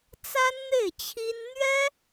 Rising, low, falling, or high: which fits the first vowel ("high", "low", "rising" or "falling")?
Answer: high